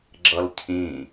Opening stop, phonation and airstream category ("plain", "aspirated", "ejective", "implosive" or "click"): click